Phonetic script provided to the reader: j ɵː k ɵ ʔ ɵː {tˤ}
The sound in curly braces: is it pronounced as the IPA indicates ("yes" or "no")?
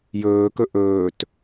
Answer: no